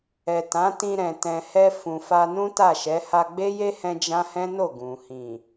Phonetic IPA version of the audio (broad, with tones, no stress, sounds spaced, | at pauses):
ɛ˨ t ã˨˦ t ĩ˧ ɾ ɛ̃˨ t ɛ̃˨ h ɛ˧ f ũ˨ f a˧ n ũ˦ t a˦˨ ʃ ɛ˨˦ h a˧ ɡ͡b e˦ j e˦ h ɛ̃˦ d͡ʒ ã˦ h ɛ̃˦ n o˦˨ ɡ ũ˨ h ĩ˨